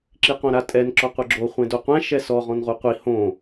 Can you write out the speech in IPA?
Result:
ǁiqõɾatʼɛn ǁɔqʷɯɡ͡ǁo χʷẽdoqʷɛ̃ ʃɛsɔ ʁɔ̃nʁuqʷi hõ

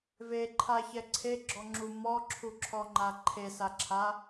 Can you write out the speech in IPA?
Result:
veǃʰaçɛ ǀʰeɡ͡ǁɔŋ͡ǁu mɔǁʰuǁʰɔŋ͡ǃa ǃʰesaǁʰa

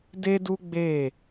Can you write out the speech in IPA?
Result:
de˦du˦ɡ͡be˦˨

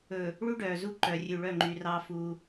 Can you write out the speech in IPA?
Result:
ɵ˨ | ɭu˦ɖœː˨zu˦ǃœ˨ rʲʉ˨ɭœ˦˨ ŋ͡ǃy˨rɑː˦ fuː˦

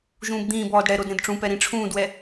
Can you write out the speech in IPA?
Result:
ʒũːbd̪ĩːbɔːd ɽɛɾod ɾẽdʈ͡ʂũpɛ ɾĩʈ͡ʂʰũːdwɛ

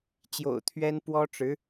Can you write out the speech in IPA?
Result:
t͡ɕjo̰˨˩ʊ̯t̪ʰɥɛ˥n pwɔ˥ʈ͡ʂɻ̩˧˥

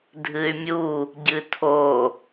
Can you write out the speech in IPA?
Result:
dʱɨy̯mʲu | ɟɨtʰo

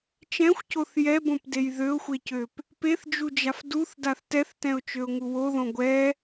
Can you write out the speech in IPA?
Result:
t͡ʃɛ̃xʷcoθ jɛbõpdej ðøʊ̯xʷecøp | peθd͡ʒud͡ʒaf duθdaθ tɛθtɛ̃ʊ̯t͡ʃøʊ̯ŋu woðõ ɡʷɛ

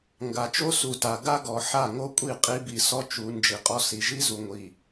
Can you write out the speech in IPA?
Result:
ŋɡa˨t͡ʃo˦ su˨ta˨ ɡa˦ɡɔ˨ ħa˦˨ŋo˦kʷʼi˦˨ qʼi˦bi˨sɔ˦t͡ʃu˨˦ nd͡ʒi˨qʼɔ˦ si˨ʒi˦zu˨ŋʷi˨

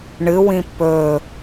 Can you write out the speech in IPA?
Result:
ɳɨwĩ pɵ

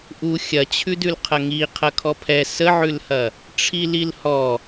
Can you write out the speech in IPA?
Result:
ʔu xʲɐt͡ɕʰʉ dʉlqʰɐŋi qʰɐkʰɔpʰɛ səʕʉlhɐ | ʈ͡ʂʰililhɔ

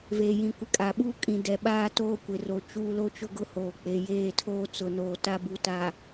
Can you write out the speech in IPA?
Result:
veː˨jĩ˨ kʷɪ˨ kʼa˨ɓuː˦ kʼĩ˨ dɛ˨ɓaː˦ toː˦kʷɪ˨ro˨t͡ʃuː˦ lo˦t͡ʃʊ˦ɡʊ˦ hoː˨k͡pe˨jeː˦˨tʰoː˦ t͡sʊ˨noː˨ ta˦bu˨ta˨

